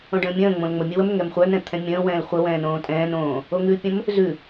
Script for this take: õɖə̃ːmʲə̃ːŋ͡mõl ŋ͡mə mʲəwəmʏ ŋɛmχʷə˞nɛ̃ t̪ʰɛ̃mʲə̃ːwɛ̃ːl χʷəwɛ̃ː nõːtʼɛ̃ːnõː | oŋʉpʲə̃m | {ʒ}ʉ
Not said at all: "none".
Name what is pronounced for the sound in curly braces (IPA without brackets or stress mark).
z